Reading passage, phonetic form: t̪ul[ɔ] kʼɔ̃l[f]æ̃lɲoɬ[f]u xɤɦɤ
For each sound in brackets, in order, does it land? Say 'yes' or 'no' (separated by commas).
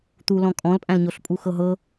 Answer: no, no, no